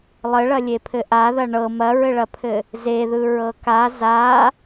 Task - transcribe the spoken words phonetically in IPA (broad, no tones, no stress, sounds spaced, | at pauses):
lˠ ɘ ɭ ɐ lʲ e pʰ ɘ ʔ a ð ɐ ɳ ɤ m ɐ ɹ ɘ ɭ ɐ pʰ ɘ | z e ð ɯ ɹ ɤ k a z a